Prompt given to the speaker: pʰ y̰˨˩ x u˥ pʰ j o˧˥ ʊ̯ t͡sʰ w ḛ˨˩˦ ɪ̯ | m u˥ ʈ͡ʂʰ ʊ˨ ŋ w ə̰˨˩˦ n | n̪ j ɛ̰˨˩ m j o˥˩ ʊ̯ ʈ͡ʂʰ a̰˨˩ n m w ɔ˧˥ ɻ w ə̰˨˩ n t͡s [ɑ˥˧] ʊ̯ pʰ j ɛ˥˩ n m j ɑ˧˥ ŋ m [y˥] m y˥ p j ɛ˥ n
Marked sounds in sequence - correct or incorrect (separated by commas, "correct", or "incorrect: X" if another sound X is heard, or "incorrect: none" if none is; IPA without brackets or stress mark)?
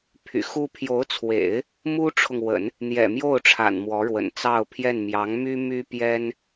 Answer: correct, correct